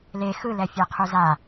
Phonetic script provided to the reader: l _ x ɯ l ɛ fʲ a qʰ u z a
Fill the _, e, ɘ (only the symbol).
e